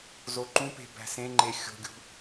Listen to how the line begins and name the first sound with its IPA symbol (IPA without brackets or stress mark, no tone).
z